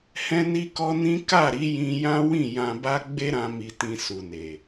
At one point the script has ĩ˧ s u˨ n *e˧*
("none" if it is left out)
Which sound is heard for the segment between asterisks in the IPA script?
e˨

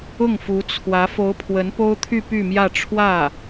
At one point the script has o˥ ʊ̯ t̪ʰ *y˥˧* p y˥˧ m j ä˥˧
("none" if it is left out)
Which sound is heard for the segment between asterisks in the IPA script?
y˥˧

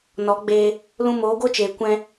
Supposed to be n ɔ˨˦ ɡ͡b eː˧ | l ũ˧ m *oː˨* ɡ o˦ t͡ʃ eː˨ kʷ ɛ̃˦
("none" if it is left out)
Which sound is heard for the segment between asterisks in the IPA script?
oː˨˦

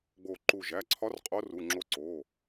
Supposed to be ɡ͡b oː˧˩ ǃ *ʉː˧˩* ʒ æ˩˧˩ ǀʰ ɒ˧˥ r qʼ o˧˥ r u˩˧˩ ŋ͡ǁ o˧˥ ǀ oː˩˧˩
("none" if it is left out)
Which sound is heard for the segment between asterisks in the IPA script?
uː˧˩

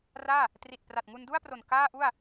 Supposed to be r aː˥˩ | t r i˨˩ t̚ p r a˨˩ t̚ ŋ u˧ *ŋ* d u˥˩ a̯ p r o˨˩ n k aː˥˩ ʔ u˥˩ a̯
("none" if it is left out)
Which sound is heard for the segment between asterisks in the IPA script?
n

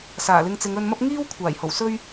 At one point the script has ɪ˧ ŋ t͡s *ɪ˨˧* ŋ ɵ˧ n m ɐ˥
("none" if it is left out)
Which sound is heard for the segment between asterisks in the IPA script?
ɪ˨˧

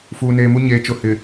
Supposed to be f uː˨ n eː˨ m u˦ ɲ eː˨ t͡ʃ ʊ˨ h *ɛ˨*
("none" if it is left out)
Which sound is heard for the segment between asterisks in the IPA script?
ɪ˨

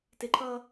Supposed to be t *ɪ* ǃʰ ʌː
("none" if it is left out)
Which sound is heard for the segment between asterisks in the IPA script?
ɪ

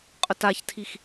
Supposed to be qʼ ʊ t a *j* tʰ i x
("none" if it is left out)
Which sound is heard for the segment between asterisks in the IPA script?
ç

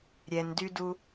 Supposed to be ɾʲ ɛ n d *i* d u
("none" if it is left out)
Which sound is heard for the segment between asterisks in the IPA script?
y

